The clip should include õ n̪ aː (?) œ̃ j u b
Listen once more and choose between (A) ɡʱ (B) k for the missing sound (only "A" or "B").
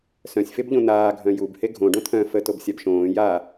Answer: A